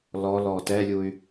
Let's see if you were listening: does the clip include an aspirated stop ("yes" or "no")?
no